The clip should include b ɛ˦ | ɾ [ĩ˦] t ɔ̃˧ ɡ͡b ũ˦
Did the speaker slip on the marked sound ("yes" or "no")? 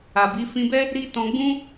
yes